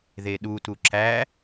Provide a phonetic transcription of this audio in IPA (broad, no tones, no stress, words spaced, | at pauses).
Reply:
ðeɗutu ǁæ